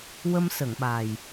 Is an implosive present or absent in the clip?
present